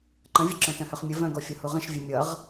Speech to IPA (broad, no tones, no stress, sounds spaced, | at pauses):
ǃ ə̃ vʲ ʌ ǁ œ̃ t œ̃ h œ χ mʲ ə v œ̃ ɡ ɔ fʲ ʌ h u ʁ ə̃ ʃ vʲ ɛ mʲ ʌ ʁ